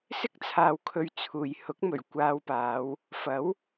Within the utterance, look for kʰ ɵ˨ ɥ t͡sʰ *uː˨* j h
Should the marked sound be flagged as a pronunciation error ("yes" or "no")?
no